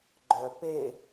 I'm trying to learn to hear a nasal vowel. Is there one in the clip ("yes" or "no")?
no